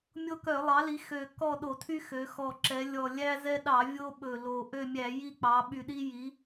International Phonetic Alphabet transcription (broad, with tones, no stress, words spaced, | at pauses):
mʲo˦kœ˧˩˧lˠɑ˩˥li˩˥ xø˨˩ kɔ˦˨ ɗo˧˩˧tʰy˦xø˩˧ xɔ˨˩ǁɛ˩˧ lʲɔ˨˩ lʲæ˦zɛ˦ɗɑ˧˩˧ vʲo˦ ɓɵ˨˩lo˨˩ ʔø˦˨mʲæ˧˩˧ ji˦˨k͡pɑ˩˧ɓy˨˩ɗi˦ ji˩˧